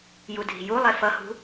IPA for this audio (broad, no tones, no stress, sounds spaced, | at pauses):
j u dʱ i̤ j u lˠ e f ʌ h ṳ